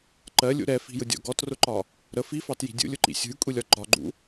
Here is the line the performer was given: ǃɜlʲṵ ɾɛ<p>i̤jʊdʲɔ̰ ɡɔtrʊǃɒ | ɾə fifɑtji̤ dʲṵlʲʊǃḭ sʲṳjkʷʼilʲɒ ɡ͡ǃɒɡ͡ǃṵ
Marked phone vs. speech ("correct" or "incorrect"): incorrect